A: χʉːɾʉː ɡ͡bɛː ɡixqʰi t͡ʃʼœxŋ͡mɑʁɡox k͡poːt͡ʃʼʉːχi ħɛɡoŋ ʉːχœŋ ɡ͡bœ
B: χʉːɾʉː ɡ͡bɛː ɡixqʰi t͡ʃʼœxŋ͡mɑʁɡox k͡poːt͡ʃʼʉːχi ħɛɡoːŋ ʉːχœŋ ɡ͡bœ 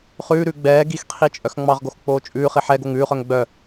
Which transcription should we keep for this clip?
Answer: A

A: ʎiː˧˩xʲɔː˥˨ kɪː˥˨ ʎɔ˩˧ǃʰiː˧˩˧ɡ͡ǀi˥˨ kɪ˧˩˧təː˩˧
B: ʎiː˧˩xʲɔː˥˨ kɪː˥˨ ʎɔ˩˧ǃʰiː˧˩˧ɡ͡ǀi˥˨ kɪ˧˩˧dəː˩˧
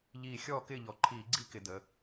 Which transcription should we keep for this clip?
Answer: B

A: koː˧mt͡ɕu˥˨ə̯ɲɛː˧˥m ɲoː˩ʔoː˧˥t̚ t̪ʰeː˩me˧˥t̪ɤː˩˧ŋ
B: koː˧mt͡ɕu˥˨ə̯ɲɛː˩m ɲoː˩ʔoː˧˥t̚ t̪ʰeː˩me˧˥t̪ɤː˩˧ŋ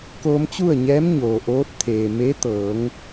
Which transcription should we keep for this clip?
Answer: A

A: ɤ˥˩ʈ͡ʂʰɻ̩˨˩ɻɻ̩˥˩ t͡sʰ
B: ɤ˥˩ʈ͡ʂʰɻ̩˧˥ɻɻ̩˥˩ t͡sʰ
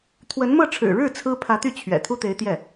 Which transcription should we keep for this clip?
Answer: A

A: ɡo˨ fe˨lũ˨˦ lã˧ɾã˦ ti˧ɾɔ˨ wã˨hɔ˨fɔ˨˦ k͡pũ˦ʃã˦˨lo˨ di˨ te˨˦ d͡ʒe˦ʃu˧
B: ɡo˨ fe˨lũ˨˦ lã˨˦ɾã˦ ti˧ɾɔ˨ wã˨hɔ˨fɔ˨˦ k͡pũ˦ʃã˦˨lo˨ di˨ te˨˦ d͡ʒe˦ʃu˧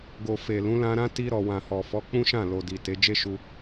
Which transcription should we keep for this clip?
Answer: A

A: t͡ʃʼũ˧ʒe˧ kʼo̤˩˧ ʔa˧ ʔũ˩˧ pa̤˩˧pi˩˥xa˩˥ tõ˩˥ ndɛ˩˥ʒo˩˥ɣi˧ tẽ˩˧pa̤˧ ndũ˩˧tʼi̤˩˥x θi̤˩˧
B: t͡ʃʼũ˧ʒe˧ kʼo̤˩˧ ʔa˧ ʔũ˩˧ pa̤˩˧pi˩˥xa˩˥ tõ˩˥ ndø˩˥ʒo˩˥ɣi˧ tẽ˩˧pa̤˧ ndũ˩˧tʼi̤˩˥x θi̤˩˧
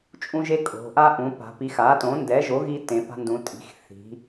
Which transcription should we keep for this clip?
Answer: A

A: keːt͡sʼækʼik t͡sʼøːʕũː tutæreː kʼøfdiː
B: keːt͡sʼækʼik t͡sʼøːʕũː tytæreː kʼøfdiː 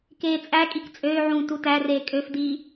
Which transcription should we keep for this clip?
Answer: A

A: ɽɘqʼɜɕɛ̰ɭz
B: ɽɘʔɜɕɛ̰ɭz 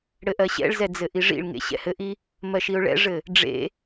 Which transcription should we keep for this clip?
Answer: B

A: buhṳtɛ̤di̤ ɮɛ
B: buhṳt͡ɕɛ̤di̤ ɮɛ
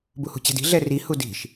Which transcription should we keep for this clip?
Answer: B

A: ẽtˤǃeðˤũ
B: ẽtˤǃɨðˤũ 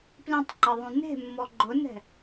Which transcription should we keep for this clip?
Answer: A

